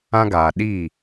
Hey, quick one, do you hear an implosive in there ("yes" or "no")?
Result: yes